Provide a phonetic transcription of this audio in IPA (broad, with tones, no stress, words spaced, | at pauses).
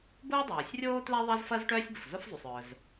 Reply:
bʊː˥dˤoː˩sʲrʲoː˥tlɛ˥ ðˤɐ˥zfɐ˥z ʈœː˥sʲbʊ˩fzʊ˥fzˤu˩sˤ œ˩z